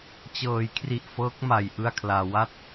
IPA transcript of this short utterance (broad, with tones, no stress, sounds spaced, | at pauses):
t͡ɕ ɤː˩˦ j kʰ r i˨˩ ʔ f ɤː˦˥ k̚ m a˨˩ j ʔ ɯ˥˩ a̯ kʰ l aː˧ w a˦˥ t̚